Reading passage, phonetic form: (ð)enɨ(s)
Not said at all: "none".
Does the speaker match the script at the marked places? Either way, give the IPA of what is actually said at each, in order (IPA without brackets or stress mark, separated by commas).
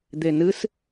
d̪, s